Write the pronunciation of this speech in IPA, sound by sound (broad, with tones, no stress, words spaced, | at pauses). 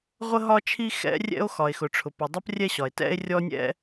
ʁʷə˥ɦɒ˥t͡ʃʰi˥ xɛ̰˥rʲɛ̰˥o̯ xɒ˩e̯xʊ˩ʈ͡ʂʰʊ˩pʊ˩ dˤʌ˥p rʲɛ˥ɕɒ˩e̯tɛ̰˥e̯ rʲɔ˥nʲɛ̰˥